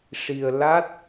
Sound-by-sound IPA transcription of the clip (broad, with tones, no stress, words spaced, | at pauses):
ʂi˧ə̯la˦˥t̚